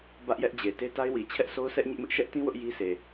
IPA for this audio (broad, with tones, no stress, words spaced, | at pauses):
bä˦ʔjɛ˦ʔ d͡ʑe˨ te˦ta˦ɪ̯wi˨ t͡ɕʰɛ˦ʔso˦ʊ̯sʰɛ˦ʔ ɲɪ˦ʔmɪ˦ʔ ʃɛ˦ʔtĩ˦ wʊ˦ʔji˦se˨